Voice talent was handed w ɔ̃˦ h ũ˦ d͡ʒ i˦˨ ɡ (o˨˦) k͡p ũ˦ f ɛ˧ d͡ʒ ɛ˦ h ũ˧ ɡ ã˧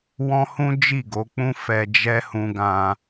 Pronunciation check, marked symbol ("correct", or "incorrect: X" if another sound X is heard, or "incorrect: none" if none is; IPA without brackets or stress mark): correct